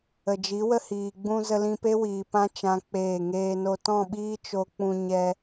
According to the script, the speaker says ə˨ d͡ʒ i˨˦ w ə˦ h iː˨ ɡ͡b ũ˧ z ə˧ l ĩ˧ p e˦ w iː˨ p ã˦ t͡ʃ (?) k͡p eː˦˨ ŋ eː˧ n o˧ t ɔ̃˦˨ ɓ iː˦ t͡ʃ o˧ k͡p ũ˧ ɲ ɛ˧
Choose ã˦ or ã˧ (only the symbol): ã˦